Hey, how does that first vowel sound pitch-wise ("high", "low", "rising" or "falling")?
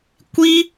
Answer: high